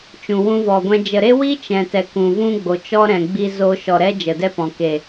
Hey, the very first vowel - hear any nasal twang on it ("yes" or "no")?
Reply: yes